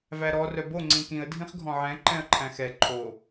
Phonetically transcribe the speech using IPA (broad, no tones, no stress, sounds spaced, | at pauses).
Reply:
v æ ɾ ɔ r œ b o ŋ͡ǀ ĩ k ĩ ə̯ dʱ ĩ χ ɡʱ ɔ̃ ʕ ɛ̃ ǃ ɛ̃ ə̯ ǃʰ æ̃ x ɛ ǃʰ o